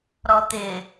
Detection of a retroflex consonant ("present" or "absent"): absent